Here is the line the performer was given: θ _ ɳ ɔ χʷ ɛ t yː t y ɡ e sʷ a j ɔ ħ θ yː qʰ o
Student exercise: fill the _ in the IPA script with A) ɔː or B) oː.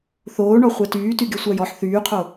B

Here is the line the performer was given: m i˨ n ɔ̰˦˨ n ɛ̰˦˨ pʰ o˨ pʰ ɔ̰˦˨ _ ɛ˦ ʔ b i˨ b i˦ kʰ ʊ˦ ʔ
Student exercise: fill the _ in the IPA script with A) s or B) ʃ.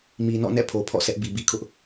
A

